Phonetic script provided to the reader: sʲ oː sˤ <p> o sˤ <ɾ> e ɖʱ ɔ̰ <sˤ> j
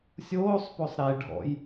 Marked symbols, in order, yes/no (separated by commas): yes, yes, no